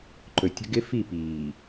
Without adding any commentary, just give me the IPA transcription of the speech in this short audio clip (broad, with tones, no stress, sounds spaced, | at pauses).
ǃ ɵ˨ tʲ ə̤˦ ɡ ɪ˦ f i˦˨ p iː˨